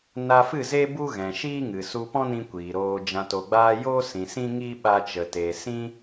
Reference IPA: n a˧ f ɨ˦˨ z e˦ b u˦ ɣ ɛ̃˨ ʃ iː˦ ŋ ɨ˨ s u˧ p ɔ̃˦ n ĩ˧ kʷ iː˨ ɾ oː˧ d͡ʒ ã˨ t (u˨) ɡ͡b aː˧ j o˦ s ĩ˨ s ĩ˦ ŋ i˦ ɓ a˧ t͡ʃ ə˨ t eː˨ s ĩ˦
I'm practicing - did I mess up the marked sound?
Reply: yes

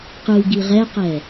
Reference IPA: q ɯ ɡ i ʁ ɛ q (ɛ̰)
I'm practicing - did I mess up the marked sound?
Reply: yes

